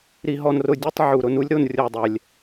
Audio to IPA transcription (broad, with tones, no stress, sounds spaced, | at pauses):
ɾ i˦ ɦ ɔ˦ n r ʊ˦ dʲ e˥ tˤ ʕ u˨ ɾ ʊ˨ n u˦ lʲ ɾ o˨ n rʲ o˨ dˤ ɛ˩ lʲ